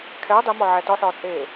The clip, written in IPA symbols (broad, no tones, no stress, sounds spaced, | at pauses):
kʰ ɛː dˤ i m ɒ ʕ æ t ɒ ħ ɒː t͡sʼ eː